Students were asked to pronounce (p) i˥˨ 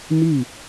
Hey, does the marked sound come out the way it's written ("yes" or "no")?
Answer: no